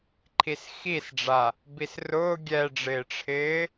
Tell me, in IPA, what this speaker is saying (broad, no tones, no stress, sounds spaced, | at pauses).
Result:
ǃʰ i s x i s ɖ͡ʐ a | b i s r ʊː ɡʲ ɛ ɖ͡ʐ ɪː ʈ͡ʂʰ ɪː